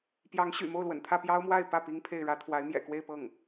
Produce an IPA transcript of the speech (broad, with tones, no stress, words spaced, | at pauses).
pjɑ˧˥ŋɕy̰˨˩ mo˥˩ʊ̯lwə̰˨˩nt̪ʰä˥˩ pjɑ˥ʊ̯mwa˥˧ɪ̯ pä˥˩ pi˥ŋpʰe˥˩ɪ̯ɻä˥ t̪ʰwa˧˥ɪ̯mjɛ̰˨˩kwe˥˧ɪ̯pɤ˥˩ŋ